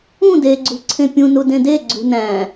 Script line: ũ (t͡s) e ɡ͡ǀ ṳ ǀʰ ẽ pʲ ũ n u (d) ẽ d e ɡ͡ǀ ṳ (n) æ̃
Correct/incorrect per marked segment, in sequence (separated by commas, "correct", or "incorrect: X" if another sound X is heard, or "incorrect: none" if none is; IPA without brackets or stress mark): incorrect: d, correct, correct